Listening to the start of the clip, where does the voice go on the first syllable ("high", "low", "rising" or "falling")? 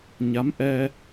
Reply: rising